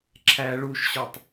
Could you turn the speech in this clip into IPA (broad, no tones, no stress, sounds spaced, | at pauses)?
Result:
ǁʰ æ ɭ u ʃ ɕ ɒ tˤ